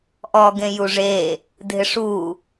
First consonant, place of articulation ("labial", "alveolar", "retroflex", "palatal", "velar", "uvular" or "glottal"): glottal